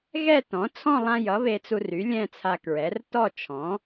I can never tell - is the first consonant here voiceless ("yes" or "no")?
no